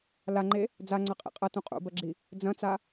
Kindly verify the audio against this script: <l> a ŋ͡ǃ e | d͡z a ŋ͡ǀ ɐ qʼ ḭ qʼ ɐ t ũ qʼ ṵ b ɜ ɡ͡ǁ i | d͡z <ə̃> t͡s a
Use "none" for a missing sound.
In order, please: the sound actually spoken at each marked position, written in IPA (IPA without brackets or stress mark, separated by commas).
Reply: l, ɐ̃